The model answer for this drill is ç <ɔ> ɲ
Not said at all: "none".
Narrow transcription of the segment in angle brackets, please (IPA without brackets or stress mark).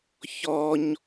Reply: ɔ